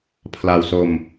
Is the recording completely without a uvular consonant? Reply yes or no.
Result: yes